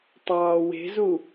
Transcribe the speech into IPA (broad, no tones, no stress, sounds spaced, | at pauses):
tˤ ɑː w e̤ z u